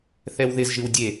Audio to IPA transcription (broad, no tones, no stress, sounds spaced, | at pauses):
θ ɛ w ð ɪ z ʒ ɨ w dʲ e